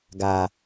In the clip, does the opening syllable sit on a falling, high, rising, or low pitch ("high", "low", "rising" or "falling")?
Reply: low